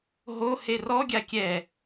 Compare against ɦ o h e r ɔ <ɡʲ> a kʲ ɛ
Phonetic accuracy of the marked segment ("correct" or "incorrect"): correct